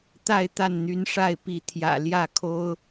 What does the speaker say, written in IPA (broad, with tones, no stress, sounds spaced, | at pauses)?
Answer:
t̪ a˥˨ ɪ̯ t̪ a˥˨ n n̪ y˨˦ n ʂ a˥˨ ɪ̯ p i˨˦ t̪ʰ j ä̰˨˩ l j ä˥˨ kʰ o˦ ʊ̯